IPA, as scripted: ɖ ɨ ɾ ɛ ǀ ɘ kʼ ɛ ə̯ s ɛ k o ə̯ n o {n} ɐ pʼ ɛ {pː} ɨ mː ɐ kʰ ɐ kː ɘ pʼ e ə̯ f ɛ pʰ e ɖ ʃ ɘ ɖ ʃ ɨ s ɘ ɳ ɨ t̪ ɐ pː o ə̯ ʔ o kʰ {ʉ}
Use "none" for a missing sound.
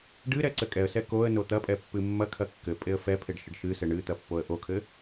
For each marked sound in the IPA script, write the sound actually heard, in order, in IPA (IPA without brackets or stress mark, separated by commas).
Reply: t̪, pː, ɘ